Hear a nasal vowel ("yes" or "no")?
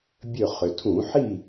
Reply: yes